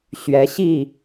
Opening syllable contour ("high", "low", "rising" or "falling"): rising